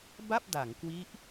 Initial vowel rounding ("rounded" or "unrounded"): unrounded